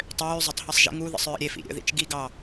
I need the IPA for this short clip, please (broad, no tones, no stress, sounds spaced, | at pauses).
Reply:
tˤ øː zˤ ɐ tˤ h i sˤ ʒ ḭ ŋ u ð ə̰ sˤ ɹ ə̰ ɾʲ e f ḭ ɾʲ ə̰ ð ḭ t͡ʃ ɡ i ɡ ɑ